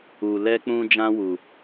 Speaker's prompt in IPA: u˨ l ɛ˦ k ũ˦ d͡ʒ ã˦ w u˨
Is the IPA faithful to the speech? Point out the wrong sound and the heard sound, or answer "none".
k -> k͡p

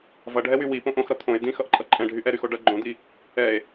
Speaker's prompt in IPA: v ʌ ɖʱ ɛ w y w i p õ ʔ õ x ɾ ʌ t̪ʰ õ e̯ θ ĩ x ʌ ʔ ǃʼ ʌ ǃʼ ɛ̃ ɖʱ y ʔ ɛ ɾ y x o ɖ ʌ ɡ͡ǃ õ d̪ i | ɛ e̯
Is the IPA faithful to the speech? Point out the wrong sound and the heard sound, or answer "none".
θ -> d̪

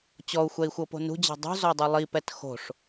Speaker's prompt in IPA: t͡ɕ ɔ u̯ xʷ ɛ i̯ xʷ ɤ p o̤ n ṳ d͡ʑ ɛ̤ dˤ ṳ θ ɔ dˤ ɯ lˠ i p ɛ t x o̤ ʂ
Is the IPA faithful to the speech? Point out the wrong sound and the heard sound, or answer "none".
θ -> z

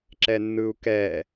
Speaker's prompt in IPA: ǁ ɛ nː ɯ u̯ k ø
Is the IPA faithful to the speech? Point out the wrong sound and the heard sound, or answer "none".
ø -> ɛ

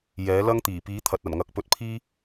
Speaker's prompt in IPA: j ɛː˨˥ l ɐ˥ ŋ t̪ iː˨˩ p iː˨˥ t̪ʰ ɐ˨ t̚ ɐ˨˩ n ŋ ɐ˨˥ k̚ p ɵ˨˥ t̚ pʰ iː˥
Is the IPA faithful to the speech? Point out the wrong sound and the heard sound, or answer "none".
none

